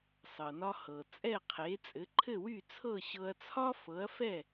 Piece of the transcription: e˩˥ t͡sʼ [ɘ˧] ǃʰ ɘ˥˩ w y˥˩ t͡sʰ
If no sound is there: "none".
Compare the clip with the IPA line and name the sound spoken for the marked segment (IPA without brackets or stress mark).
ɘ˩˥